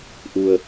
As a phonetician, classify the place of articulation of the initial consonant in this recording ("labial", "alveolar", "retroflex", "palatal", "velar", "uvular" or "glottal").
glottal